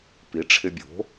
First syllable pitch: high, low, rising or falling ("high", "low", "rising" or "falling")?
rising